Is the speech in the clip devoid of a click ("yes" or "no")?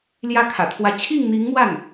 yes